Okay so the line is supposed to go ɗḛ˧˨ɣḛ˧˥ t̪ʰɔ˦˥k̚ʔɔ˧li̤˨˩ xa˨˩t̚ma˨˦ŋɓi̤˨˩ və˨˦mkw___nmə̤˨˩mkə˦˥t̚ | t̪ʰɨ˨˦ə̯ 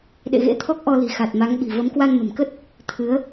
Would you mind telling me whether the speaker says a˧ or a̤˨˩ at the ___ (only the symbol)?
a˧